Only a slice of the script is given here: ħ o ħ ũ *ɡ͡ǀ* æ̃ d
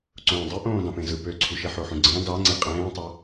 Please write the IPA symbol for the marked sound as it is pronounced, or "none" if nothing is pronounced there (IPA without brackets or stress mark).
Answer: ɡ͡ǀ